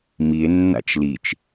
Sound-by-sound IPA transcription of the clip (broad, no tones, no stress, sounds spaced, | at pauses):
m i e̯ nː a̰ t͡ʃ l i t͡ʃ